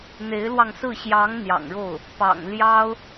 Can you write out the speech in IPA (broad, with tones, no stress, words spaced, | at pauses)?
n̪e˧˥ɪ̯lwɑ˧ŋsɹ̩˥˩ ɕjɑ˧˥ŋ n̪jɑ̰˨˩ŋɻo˥˩ʊ̯ | pɑ̰˨˩ŋ ljɑ˥ʊ̯